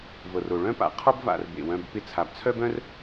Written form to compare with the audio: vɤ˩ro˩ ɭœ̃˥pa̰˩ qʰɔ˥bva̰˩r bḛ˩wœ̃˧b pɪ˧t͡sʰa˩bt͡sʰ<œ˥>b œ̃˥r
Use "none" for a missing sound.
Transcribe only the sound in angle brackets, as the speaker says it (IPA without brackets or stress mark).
œ˥